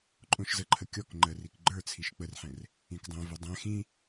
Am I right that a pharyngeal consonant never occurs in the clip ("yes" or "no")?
no